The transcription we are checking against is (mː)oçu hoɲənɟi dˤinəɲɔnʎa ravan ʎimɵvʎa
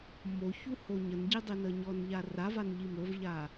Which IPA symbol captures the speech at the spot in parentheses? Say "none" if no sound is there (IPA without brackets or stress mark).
m